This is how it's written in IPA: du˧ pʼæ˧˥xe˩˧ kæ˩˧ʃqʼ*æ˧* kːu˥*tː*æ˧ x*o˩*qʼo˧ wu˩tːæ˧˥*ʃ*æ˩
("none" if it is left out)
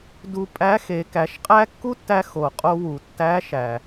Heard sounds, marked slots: æ˥, tː, o˩, ʃ

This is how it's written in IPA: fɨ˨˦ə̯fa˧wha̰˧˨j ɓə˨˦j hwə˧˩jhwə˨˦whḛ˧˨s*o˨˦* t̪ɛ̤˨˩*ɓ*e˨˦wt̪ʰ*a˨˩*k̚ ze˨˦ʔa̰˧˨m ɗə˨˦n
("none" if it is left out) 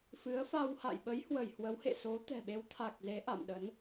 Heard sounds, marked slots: o˨˦, ɓ, a˨˩

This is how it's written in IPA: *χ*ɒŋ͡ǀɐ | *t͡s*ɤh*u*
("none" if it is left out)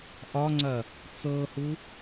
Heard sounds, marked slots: ʔ, t͡s, u

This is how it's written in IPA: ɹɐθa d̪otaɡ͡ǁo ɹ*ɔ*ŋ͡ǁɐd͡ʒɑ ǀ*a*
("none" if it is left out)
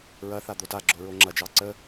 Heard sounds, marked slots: o, ə

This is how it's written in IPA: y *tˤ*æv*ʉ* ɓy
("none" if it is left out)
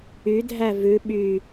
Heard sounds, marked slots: dʱ, ʉ

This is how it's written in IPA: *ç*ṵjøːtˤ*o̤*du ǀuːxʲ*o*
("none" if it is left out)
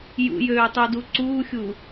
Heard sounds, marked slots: j, o, u

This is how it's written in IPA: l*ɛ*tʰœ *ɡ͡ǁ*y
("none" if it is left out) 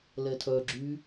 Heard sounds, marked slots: ɛ, ɡ͡ǁ

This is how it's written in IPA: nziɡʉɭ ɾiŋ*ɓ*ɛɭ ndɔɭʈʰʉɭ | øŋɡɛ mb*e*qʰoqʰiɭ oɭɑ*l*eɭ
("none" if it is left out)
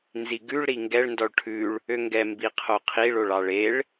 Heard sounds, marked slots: ɡ, i, ɭ

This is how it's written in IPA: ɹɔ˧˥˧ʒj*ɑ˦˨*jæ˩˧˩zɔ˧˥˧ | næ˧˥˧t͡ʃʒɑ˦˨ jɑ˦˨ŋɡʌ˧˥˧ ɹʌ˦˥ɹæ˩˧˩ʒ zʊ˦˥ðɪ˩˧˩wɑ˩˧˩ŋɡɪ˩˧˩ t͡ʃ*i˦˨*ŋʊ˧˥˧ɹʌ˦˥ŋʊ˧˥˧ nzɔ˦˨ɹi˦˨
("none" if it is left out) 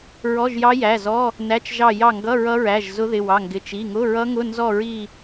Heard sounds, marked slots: ɑ˦˥, i˩˧˩

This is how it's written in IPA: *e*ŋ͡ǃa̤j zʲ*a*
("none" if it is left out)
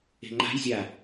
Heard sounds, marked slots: e̤, a

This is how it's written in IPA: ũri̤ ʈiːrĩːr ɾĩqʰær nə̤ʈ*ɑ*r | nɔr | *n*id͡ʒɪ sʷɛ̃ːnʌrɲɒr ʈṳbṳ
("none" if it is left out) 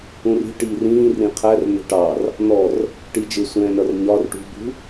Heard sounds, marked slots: ɑ, ʈ

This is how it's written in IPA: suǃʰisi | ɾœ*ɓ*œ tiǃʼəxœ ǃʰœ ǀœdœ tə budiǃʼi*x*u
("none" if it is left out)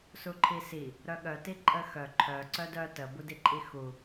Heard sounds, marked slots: ɠ, x

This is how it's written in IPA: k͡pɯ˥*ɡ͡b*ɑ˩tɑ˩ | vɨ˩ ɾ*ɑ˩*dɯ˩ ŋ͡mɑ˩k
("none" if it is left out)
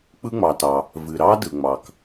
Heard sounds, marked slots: ŋ͡m, ɑ˥

